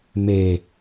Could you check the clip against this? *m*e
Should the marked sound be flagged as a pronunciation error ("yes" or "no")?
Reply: no